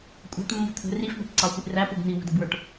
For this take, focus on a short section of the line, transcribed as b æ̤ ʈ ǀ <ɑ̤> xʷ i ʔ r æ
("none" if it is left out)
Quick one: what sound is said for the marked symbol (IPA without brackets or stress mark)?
ɑ